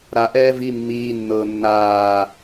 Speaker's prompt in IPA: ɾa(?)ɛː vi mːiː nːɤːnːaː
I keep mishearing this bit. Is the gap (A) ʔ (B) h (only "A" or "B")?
A